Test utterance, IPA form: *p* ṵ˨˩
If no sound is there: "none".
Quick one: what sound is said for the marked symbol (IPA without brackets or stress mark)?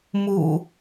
m